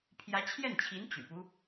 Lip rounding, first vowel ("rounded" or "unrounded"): unrounded